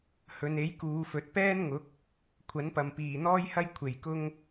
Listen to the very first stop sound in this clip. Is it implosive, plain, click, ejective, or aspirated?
plain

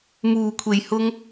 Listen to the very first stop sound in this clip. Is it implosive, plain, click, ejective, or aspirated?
aspirated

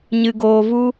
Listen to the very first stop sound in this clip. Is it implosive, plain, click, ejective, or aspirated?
plain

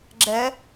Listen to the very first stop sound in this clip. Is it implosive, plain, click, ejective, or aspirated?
click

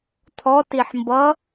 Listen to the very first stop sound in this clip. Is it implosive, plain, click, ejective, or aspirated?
aspirated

